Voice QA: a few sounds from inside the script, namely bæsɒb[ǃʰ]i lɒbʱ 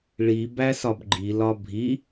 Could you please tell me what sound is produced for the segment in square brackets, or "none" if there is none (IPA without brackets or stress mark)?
ɡ͡ǃ